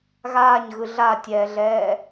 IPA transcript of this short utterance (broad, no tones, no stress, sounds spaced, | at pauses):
ɣ aː ɲ ɣ ɯ ɮ a tʲ ɛː ɮ ɛː